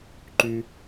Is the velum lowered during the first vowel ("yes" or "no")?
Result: no